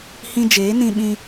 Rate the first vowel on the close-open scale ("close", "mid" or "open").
close